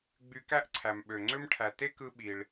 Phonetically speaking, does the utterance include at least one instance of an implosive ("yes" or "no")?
yes